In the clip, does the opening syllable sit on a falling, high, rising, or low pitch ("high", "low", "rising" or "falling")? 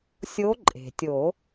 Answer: rising